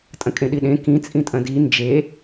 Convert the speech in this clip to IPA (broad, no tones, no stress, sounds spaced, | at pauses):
tʼ ɐ̃ kʼ ẽ ɗ i ɗ ẽ k ĩ t͡sʼ ĩ tʼ ɐ̃ d i n d͡ʒ e